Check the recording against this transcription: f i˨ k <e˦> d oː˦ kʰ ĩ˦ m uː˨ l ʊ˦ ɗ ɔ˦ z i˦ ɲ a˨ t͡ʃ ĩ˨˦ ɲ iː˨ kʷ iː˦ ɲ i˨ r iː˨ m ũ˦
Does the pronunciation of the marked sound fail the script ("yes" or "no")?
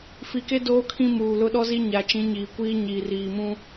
no